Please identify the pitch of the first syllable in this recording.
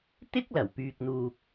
high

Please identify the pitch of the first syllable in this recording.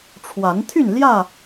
rising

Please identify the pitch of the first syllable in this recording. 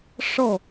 falling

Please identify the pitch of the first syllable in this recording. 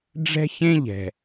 high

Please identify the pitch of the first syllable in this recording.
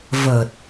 low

